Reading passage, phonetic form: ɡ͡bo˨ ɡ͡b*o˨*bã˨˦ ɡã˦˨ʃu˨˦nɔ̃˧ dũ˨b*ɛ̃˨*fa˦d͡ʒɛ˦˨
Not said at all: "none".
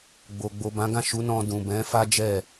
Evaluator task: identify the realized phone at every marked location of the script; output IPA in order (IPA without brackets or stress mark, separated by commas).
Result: o˨, ɛ̃˨˦